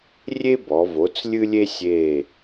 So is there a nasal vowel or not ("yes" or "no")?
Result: no